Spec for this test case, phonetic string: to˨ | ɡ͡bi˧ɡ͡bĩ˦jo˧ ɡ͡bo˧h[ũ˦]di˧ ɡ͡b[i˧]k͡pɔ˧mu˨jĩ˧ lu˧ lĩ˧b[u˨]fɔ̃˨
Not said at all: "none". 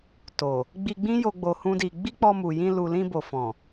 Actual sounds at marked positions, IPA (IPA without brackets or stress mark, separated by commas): ũ˦, i˦, o˨